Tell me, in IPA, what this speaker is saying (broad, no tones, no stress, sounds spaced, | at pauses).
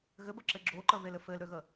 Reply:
ɣ ɘ b ə ǁ ɘ ɡ͡ǁ o ǃ ə β e l ɘ f ɘ l ɾ ø ɣ ə